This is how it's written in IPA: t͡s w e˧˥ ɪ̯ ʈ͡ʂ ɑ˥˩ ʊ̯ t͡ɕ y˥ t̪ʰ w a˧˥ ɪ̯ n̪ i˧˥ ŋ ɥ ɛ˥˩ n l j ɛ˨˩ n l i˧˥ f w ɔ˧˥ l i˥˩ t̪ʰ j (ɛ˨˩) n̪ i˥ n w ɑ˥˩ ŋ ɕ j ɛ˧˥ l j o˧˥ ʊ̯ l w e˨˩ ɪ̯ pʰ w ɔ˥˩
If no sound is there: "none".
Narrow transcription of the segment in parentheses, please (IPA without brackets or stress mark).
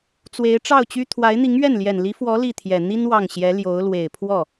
ɛ˨˩